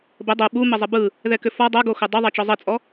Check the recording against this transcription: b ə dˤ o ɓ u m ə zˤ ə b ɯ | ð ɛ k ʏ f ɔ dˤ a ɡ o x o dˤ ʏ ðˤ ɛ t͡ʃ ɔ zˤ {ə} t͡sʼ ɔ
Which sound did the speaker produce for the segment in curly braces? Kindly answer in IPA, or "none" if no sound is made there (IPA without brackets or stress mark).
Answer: ə